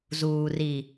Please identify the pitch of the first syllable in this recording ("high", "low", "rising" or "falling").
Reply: low